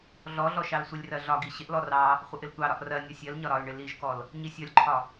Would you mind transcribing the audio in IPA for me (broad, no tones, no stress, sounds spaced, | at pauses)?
ɮ ɔ ɮ ɔ ʃ ɑ l sʷ ɪ lʲ r ɜ ɮ ɒ ɡ i ɕ ɪ ʔ l ɔ r ɑ | χʷ ə ʔ ɪ l tʷ ɑ ɾ ɒ ʔ r ɜ nʲ ɒ sʲ ɜ l ɲ ɒ ɾ ɒ l ɳ ɪ l i ʒ k ɔ l | ɲ i sʲ ɒ lʲ ǃʰ ɒ